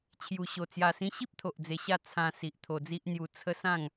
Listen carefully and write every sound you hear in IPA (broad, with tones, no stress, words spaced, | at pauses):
t͡ɕʰju˨˩ɕo˨˩ t͡sja˨˩sĩ˧ɕi˦p̚ t̪ʰo˨ʔd͡ze˧ɕa˥˧ t͡sʰã˧si˨ʔ t̪ʰo˧d͡zi˦ʔn̪ju˧ t͡sʰə˦sã˥˧ŋ